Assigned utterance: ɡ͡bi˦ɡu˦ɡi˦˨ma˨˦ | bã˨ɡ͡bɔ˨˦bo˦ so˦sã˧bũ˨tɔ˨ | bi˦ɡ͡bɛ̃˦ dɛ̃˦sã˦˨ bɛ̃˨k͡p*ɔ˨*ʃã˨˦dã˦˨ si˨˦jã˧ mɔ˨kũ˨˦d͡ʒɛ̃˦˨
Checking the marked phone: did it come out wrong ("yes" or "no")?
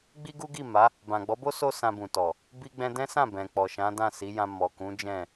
no